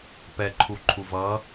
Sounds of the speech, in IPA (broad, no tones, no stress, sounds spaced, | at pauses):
p ɛ ǃʰ u ǃʰ u v ʌ